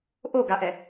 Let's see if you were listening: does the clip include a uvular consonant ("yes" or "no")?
no